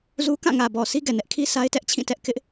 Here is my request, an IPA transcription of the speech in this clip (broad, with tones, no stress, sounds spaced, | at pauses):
z u˦ k ã˦˨ ŋ ä˨ b ɔ˨ s i˦ ɡ ɛ˨ n ɛ˦ ʔ kʰ i˦ s a˦ ɪ̯ t ɛ˦ ʔ t͡ɕʰ ĩ˦˨ t ɛ˦ ʔ k ɪ˦ ʔ